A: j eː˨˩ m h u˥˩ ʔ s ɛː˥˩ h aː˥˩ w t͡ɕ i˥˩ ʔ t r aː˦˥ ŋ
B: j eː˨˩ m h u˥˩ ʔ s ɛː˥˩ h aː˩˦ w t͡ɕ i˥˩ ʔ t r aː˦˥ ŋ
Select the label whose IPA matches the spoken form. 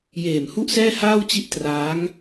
A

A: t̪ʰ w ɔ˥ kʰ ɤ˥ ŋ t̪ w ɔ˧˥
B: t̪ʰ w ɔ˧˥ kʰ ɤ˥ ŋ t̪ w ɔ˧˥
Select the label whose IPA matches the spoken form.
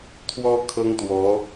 A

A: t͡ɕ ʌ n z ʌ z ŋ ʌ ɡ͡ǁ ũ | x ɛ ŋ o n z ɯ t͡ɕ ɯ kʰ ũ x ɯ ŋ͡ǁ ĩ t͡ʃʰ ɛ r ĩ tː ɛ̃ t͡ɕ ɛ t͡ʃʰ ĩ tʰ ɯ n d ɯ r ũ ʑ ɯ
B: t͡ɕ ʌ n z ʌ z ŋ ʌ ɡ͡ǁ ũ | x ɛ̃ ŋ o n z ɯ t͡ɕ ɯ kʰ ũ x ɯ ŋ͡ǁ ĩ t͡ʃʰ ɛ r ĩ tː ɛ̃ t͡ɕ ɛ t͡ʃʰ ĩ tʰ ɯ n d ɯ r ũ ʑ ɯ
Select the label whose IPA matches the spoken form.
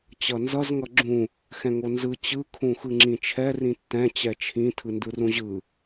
B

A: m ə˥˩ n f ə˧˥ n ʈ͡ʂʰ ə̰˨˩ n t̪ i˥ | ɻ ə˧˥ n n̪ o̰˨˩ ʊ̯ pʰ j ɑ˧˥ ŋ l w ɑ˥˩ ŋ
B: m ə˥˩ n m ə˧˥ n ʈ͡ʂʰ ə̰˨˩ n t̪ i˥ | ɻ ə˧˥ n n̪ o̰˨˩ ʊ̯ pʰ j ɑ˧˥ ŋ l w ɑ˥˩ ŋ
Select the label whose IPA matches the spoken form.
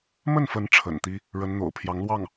A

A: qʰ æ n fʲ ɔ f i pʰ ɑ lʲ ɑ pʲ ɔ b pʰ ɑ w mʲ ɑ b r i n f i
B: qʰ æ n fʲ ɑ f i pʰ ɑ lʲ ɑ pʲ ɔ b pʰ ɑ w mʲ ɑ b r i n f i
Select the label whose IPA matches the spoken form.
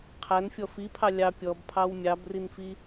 A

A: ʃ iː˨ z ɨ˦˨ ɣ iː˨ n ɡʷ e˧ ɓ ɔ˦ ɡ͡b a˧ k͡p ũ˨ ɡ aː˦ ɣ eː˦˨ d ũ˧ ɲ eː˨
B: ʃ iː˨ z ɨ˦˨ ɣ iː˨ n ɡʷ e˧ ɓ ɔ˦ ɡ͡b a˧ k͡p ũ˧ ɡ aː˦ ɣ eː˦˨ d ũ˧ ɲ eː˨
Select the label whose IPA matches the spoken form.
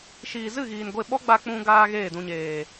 B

